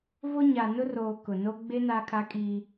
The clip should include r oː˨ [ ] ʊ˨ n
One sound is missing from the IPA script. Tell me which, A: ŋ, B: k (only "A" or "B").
B